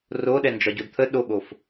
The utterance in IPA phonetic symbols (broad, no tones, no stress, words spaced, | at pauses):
roɗɛnd͡ʒɒɟod t̪ʰə ɗoɠof